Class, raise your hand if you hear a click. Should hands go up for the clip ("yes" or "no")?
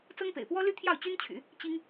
no